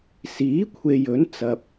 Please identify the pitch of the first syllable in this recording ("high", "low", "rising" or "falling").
rising